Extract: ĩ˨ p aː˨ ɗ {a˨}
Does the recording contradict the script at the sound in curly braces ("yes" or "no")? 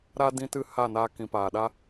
yes